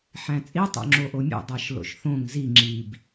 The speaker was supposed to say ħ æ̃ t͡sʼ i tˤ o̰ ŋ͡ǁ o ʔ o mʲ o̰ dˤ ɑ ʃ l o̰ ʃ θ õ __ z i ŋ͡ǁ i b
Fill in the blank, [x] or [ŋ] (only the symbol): ŋ